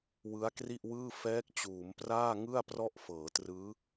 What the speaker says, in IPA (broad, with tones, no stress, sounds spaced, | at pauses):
w ɯ˦˥ a̯ k r i˥˩ ʔ w ɯː˥˩ f ɛː˦˥ k̚ t͡ɕ uː˩˦ m p r aː˥˩ ŋ ɯ˥˩ a̯ p r ɔ˥˩ ʔ f ɤː˩˦ t r ɯː˦˥